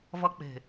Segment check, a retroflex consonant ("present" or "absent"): absent